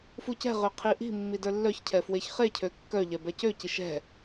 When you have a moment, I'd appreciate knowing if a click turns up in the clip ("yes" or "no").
no